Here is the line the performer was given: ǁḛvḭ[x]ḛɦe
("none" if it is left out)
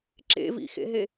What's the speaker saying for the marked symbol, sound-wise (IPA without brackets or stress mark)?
x